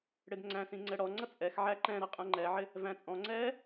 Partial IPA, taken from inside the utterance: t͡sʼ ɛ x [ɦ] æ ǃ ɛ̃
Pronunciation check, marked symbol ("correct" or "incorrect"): incorrect